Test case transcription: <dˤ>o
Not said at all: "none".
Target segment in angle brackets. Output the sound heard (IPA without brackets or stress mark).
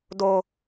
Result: d